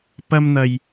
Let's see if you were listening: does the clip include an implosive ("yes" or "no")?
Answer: no